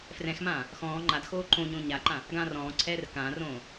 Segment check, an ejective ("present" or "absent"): absent